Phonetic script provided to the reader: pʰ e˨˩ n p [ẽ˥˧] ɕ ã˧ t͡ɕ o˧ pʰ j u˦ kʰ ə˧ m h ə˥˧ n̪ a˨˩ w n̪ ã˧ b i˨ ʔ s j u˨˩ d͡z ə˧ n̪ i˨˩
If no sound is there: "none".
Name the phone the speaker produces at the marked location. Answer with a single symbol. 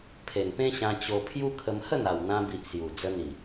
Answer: ẽ˦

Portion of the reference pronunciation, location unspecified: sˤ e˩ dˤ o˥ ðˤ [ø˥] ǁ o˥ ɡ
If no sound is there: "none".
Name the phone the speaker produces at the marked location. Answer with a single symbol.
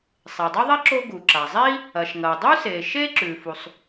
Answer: e˥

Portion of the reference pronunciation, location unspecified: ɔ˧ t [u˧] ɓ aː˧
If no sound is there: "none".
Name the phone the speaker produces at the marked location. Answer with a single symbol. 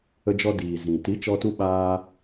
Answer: u˧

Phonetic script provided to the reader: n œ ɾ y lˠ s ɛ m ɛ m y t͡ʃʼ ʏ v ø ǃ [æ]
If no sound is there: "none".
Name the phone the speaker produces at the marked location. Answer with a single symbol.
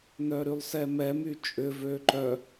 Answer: œ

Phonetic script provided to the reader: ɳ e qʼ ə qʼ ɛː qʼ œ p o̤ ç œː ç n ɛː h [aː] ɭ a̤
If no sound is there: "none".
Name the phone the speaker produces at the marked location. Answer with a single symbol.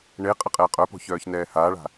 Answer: aː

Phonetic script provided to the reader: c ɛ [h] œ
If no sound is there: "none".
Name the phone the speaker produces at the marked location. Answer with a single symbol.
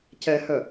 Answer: h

